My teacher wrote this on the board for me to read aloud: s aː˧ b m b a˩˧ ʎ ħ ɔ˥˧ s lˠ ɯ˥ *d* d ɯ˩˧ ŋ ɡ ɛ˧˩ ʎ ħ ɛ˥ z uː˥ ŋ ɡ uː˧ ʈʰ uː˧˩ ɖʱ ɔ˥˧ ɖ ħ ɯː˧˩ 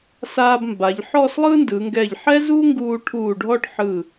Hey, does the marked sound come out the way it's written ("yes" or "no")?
no